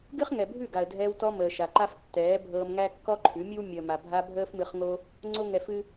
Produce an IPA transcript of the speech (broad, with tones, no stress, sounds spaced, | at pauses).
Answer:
ɡ ɨ˦ χ ŋ ɛ˨ bʱ ʉ˦˨ ɡ a˨ ə̯ dʱ ɛː˧ w t ɔ˧ m əː˨ ʃ a˨ ǃ a˧ f tː ɛː˨˦ bʱ ɤː˧ m ŋ æ˦ kː ɔ˦ ǃʰ ʉ˨˦ mʲ ɨ˦ w mʲ əː˨ m a˨ bʱ a˧ bʱ əː˦ f m ɨ˧ χ ŋ o˦ | ŋ͡ǀ o˦ ŋ ɛ˧ f ɨ˦